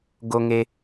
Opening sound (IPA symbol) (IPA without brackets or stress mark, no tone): ɡ